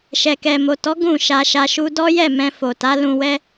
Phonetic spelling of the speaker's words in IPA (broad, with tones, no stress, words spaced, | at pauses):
ʃɛ˨kɛ˨mo˨tɔ˨˦ ɡũ˦˨ʃa˧ʃa˧ ʃu˧dɔ˦jɛ˦˨ mɛ̃˧fo˨ta˨˦ lũ˧wɛ˦